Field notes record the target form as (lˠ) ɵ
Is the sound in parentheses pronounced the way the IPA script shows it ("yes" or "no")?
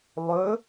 yes